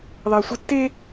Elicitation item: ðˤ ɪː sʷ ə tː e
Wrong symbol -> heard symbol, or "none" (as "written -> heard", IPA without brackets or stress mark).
none